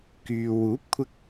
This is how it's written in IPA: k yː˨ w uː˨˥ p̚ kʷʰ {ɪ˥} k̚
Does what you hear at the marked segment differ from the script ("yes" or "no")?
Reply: yes